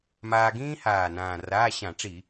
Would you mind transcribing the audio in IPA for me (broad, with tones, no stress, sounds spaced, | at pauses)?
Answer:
m aː˧ ɡ ĩː˥ h aː˨˩ n ãː˨˩ r aː˧˥˧ ɕ ã˧˩˧ ʈ͡ʂ i˧˩˧